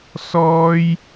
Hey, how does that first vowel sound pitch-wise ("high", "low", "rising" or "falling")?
high